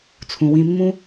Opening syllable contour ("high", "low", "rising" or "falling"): low